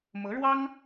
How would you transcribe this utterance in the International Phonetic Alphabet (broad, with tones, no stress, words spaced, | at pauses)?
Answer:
mɤ˧˥ɻwɑ˥ŋ